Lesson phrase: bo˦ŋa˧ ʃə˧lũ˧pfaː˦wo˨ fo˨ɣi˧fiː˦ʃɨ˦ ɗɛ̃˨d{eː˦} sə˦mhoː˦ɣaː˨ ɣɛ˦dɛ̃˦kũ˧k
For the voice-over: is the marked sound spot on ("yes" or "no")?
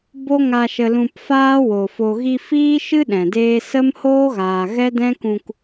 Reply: yes